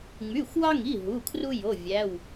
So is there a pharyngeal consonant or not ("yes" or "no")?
no